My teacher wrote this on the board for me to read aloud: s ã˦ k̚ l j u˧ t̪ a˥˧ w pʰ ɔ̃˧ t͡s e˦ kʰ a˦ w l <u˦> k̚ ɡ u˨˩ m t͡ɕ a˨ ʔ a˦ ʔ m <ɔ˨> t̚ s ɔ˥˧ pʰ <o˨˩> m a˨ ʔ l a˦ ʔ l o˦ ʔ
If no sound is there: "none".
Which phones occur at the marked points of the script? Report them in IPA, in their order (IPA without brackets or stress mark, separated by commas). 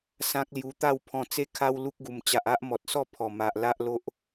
u˦, ɔ˨, ɔ˨˩